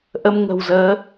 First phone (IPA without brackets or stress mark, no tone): ʔ